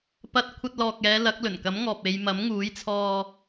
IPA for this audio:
p ɐ˧ t̚ kʷʰ ɐ˧ t̚ l ɔː˨ k̚ ɛː˨˧ l ɐ˨˥ k̚ l ɵ˨˩ n k ɐ˨˥ m ŋ ɔː˨ p̚ e˨˧ j m ɐ˨˥ m ŋ uː˨˥ j t͡sʰ ɔː˧

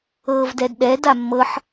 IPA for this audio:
ɤː v d ɛ d ɗ ɛ d a mː ɤ ħ

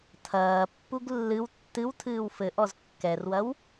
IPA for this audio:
tʰ ɐː pː u ɡ lː ɨ w tː ɨ w tʰ ɨː w f ɘ ʔ ɔ z kː ɛ r w ɐ w

